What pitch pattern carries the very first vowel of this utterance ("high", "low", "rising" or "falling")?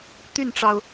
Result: falling